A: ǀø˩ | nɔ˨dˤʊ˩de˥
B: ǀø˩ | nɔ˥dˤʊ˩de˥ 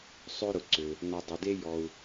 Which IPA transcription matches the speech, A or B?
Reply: A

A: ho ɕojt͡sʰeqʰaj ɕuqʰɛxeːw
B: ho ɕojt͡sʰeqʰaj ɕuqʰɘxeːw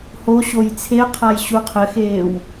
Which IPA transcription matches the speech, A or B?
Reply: B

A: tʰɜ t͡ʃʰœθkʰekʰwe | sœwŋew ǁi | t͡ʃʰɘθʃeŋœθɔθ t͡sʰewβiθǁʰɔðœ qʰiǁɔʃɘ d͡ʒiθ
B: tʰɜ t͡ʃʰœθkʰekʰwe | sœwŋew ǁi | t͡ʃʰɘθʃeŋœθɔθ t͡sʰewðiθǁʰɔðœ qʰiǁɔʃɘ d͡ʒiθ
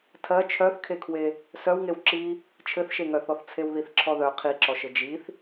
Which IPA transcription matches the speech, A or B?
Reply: B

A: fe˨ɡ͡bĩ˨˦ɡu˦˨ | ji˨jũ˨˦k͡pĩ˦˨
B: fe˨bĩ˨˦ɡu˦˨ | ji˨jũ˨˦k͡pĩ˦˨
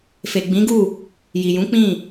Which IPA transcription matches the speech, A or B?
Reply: A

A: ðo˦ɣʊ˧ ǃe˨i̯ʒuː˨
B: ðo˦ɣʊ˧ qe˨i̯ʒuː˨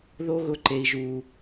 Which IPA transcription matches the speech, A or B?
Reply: A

